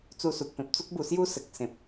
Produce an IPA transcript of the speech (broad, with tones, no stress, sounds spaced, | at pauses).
t͡s u˧ s u˨ k̚ p ẽ˨ p̚ t͡s u˦ k̚ b u˧ s j u˦ s ə˨ k̚ s ẽ˨ p̚